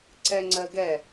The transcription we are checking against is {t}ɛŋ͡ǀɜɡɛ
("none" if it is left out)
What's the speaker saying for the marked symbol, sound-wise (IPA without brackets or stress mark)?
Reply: ǀ